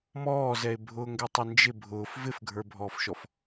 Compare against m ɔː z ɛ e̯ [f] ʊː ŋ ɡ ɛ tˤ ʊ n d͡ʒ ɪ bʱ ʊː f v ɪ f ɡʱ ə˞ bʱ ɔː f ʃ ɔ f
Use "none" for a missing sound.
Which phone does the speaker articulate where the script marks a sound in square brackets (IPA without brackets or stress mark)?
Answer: bʱ